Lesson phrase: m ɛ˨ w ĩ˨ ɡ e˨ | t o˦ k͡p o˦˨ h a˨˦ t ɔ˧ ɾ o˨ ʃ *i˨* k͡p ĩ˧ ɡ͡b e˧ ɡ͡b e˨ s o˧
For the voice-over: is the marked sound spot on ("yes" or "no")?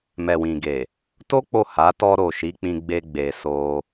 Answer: no